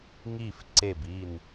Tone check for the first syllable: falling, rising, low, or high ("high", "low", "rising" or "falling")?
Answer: falling